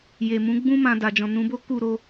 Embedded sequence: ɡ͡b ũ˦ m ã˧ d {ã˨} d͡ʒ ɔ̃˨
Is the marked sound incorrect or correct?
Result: incorrect